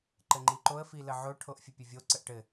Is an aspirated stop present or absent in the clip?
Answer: present